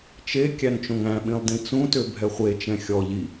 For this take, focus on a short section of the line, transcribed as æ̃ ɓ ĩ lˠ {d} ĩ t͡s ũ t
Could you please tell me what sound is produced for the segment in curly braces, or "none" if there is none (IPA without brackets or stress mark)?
d